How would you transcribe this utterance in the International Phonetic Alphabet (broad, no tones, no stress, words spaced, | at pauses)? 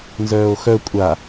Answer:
nzœːo̯xœ kʷʼa